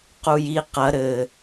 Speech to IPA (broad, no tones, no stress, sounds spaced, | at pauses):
q u j i q ɐ ɾ ɘ